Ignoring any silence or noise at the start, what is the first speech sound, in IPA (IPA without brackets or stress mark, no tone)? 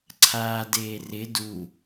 ǀʰ